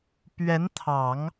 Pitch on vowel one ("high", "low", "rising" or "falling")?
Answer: rising